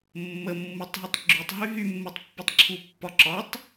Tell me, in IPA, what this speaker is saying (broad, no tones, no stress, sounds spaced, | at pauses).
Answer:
mː ə mː u tˤ ɦ ɔ tˤ ɡ͡ǁ y tˤ ɦ y ɦ y mː u tˤ pː e tˤ ǁʰ u pː ɒ ǁ ɒ tˤ